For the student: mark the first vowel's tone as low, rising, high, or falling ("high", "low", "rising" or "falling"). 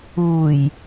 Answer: low